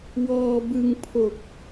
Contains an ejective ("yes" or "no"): no